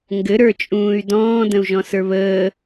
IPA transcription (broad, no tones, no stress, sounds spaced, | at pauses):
ŋ ɡ ɘ ɾ ə˞ t͡ʃʼ ũː y̯ d ɔ̃ː d ə̃ u̯ ʒ ɔ̃ s ə˞ β əː